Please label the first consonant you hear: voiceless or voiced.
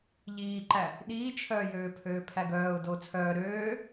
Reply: voiced